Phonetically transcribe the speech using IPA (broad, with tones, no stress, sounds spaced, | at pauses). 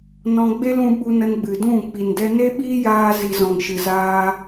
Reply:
n ɔ̃˧ ɡ͡b e˦ l ũ˧ ɓ u˧ n ə˧ n ɡ͡b ɨ˨ d ũ˦˨ k͡p i˨ n d ɛ˧ n e˦ ɓ iː˦ j aː˧ z i˨ z ɔ̃˨ ŋ ʃ ɨ˨ z aː˧